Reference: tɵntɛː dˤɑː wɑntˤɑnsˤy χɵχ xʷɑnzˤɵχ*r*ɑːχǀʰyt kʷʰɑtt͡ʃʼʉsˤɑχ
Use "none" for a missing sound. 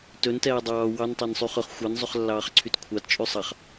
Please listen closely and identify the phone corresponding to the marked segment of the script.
lː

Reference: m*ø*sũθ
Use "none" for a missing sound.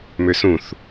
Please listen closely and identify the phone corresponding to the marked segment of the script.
ø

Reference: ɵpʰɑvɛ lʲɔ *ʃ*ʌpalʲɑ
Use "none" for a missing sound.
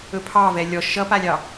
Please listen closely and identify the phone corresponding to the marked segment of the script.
ʃ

